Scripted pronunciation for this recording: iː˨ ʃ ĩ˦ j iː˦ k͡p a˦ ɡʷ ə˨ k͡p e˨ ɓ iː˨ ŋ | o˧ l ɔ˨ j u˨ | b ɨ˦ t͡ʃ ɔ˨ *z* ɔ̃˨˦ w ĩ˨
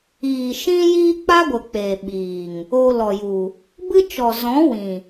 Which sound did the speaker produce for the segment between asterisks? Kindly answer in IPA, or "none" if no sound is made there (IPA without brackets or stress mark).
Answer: z